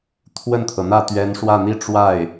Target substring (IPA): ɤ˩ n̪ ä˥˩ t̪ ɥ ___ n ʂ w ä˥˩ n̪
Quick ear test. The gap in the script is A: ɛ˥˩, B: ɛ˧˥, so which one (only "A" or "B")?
B